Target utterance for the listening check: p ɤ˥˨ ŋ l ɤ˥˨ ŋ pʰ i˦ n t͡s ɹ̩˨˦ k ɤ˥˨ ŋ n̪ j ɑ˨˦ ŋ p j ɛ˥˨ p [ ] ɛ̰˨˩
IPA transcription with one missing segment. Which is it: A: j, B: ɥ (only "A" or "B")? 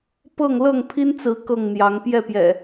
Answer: A